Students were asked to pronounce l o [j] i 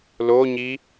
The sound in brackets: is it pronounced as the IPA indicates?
no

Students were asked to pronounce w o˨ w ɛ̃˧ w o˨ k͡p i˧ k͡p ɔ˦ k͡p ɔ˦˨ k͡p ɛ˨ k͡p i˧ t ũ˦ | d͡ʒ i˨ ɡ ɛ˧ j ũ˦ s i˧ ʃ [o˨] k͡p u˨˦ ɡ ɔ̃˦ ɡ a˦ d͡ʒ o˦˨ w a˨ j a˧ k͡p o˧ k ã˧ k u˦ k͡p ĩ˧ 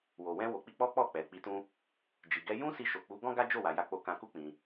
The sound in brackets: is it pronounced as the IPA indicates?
yes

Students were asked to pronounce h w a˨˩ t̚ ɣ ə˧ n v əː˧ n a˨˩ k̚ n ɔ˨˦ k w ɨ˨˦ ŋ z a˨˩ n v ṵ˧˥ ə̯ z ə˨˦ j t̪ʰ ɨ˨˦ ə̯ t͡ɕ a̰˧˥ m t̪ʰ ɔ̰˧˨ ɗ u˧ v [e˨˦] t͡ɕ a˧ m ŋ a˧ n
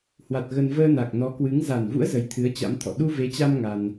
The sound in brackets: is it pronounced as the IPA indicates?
yes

